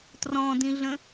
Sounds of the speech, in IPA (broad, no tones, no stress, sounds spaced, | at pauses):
t r ɔ̃ d ĩ ɮ ə̃